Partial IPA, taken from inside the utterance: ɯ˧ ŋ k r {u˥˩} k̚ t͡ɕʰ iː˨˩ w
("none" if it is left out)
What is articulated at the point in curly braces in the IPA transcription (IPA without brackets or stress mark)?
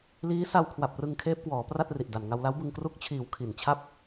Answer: u˦˥